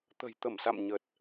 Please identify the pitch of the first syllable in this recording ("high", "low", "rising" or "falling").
low